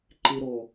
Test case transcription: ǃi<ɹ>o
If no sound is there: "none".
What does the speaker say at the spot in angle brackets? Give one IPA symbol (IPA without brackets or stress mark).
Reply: ɾ